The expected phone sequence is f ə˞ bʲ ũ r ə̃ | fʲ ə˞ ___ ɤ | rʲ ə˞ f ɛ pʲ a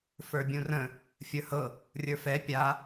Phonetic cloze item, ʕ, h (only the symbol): h